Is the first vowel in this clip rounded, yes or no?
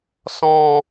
yes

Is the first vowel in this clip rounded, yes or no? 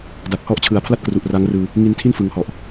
no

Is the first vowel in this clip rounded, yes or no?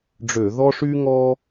yes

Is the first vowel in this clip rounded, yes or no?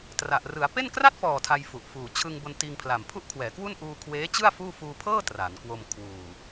no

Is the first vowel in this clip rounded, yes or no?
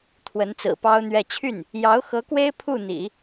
no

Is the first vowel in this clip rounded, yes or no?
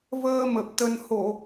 no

